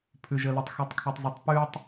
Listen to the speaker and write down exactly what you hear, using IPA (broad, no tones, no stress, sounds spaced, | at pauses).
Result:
pʰ ʉ ʒ ə l ɯ tˤ x ʉ tˤ kʰ ʉ tˤ z ʉ tˤ p ʉ tˤ